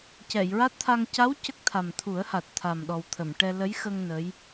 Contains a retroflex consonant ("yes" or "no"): yes